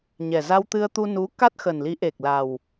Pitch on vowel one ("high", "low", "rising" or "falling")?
low